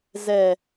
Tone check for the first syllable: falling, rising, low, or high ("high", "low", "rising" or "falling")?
low